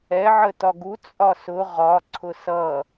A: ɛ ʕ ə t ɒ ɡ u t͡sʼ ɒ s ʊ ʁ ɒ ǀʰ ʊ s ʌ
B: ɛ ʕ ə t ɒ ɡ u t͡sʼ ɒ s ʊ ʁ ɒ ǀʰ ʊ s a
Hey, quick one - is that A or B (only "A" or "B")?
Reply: A